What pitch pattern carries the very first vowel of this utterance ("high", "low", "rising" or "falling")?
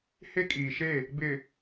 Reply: high